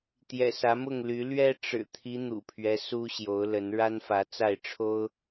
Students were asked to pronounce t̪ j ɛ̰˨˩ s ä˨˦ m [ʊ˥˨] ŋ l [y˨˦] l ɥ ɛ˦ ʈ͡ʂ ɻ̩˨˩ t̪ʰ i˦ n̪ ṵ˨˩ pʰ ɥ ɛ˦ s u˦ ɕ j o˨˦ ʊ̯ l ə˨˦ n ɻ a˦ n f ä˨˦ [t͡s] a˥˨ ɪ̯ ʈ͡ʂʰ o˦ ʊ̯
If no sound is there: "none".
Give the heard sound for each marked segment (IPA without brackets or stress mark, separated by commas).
ʊ˥˨, y˨˦, t͡s